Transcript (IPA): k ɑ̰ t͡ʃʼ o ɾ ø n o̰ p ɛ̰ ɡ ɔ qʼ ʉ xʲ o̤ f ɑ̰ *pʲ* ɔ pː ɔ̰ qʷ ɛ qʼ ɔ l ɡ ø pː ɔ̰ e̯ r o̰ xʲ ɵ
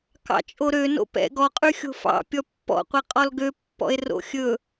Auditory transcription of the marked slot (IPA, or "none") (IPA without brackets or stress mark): pʲ